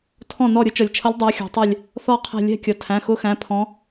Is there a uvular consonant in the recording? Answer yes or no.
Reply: yes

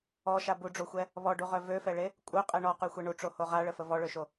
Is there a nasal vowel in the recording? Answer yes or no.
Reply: no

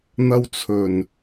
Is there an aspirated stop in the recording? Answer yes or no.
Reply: yes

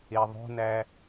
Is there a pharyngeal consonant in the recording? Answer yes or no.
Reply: no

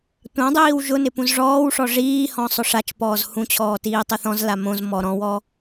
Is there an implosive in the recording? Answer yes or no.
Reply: no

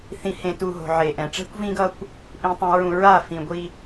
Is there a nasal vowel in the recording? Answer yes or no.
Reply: yes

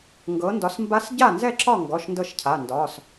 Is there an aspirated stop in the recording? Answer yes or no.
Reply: yes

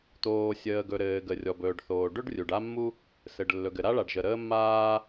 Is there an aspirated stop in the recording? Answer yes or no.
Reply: no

